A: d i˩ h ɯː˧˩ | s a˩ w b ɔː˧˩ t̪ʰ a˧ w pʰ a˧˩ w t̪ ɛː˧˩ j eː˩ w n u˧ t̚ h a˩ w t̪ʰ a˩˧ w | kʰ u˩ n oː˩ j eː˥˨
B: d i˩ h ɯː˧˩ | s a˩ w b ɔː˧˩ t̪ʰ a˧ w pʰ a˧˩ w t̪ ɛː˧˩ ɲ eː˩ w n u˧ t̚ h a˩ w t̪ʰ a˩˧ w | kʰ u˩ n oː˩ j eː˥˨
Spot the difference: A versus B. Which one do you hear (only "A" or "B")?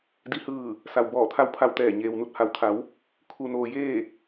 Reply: B